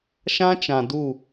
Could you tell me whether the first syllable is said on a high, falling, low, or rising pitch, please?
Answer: high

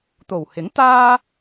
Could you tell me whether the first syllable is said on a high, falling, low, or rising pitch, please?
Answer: low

